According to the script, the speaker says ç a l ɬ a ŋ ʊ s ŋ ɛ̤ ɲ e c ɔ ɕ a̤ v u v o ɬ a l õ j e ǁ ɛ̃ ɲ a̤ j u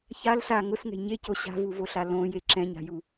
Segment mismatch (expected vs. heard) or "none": ɔ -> o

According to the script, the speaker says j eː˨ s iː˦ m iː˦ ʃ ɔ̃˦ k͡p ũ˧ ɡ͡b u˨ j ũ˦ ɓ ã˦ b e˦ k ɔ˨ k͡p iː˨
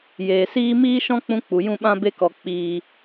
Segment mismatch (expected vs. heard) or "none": ɡ͡b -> k͡p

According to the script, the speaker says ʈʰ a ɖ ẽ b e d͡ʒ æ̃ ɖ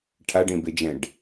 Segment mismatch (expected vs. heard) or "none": æ̃ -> ɛ̃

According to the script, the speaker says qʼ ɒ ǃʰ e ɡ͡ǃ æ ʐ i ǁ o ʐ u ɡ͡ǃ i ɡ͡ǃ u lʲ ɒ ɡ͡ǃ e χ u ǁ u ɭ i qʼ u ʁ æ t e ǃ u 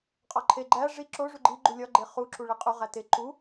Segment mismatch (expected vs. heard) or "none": none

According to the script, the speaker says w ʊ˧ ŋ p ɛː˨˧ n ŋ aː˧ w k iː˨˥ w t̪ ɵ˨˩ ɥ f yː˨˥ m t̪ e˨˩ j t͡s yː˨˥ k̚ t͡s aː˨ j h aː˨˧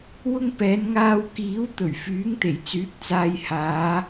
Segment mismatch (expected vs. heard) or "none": m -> ŋ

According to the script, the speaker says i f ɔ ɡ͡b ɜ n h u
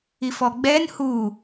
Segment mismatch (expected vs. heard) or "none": ɜ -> ɛ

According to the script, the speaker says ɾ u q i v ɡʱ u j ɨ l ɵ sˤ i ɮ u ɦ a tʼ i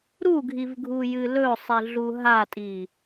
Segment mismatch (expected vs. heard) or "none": q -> ɡʱ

